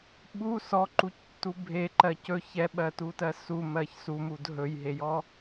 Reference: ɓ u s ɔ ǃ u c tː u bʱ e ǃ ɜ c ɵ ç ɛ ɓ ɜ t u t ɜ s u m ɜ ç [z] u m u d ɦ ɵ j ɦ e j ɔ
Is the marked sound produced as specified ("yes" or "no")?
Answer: no